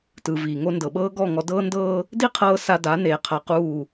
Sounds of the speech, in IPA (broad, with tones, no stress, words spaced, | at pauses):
tɯ˨viː˨ ŋo˧ ndɤ˨ɓɤː˦ ɡɔ˦˨ŋɔ˧ dɤː˦ndɤː˦ | di˦qʰɤː˧ sa˧da˨˦neː˨ qʰa˧quː˦˨